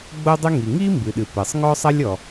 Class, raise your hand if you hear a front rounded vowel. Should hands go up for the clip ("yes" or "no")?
no